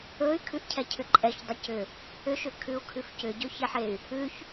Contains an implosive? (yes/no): no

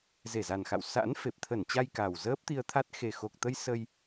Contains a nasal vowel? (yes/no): no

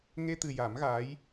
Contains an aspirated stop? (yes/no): no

